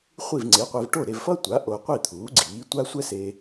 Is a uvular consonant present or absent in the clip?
present